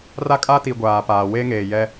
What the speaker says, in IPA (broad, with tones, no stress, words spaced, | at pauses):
ra˦kʼa˦ti˨ ɡʷaː˨paː˨ we˦ŋeː˨jɛ˦